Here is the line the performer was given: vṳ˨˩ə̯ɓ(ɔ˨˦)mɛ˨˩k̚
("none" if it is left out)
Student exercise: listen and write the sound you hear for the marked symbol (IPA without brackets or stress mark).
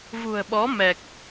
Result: ɔ˨˦